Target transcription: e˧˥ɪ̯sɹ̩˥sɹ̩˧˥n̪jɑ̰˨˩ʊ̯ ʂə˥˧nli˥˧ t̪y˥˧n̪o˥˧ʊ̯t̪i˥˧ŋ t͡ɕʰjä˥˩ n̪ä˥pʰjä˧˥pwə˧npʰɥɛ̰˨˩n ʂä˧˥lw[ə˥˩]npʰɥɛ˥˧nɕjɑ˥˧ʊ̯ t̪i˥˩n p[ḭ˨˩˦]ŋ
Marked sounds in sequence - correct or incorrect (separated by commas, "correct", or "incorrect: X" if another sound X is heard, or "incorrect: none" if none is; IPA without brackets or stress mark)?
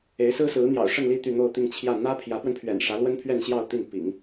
incorrect: ə˥, correct